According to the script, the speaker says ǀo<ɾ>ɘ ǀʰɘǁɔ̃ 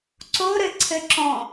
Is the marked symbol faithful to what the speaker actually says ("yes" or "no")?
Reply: yes